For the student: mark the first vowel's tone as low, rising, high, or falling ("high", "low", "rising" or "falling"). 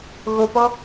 low